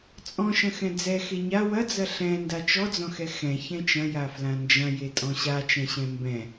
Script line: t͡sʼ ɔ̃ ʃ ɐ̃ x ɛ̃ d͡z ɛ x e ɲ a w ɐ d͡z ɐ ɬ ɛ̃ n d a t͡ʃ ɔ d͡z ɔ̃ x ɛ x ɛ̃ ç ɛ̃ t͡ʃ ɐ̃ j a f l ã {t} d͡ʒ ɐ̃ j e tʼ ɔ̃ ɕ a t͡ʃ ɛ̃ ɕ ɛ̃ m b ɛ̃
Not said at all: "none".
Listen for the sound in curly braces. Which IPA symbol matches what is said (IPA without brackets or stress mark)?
n